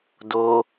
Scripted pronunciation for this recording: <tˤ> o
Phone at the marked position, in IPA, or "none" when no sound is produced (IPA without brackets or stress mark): d